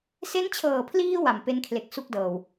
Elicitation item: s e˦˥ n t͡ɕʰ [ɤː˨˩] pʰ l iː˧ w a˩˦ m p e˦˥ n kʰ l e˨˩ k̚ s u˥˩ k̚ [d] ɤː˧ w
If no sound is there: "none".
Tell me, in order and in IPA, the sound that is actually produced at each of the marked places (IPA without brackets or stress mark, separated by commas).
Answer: ɤː˨˩, d